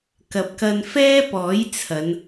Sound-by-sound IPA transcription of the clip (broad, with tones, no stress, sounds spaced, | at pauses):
k ɐ˨ p̚ k ɐ˧ n f ɛː˥ p ɔː˨˥ j t͡sʰ ɐ˨˧ n